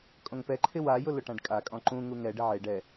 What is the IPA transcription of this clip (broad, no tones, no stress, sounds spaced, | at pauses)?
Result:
kʼ õ ŋ p ɛ ǃʰ ɪ w a j ʊ l ʊ ʈ ã ɖ kʼ a kʼ ɔ̃ ǃ ũ ŋ u ŋ ɛ ɖ ɪ ʕ e ɖ ɛ